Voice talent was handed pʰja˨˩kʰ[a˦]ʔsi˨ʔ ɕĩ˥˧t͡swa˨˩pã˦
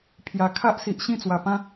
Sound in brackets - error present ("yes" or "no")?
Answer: no